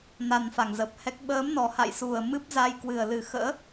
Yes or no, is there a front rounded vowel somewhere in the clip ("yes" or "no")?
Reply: no